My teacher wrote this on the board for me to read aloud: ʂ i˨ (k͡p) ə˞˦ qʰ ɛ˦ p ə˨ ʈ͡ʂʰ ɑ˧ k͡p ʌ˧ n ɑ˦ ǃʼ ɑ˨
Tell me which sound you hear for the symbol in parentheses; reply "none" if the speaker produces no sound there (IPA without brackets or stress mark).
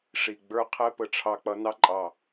ɡ͡b